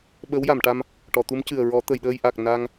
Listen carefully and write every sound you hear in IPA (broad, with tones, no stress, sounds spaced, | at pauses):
ɓ ə˧˥ w j a˨˩˨ m ʈ a˧ m | ʈ ɔ˨˩˨ t̪ u˧˥ m c ɨ˨˩ ə̯ ɹ ɔ˨˩˦ t̪ ə˨˩˨ j ɗ əː˧ j ʔ a˨˩ k̚ n a˧ ŋ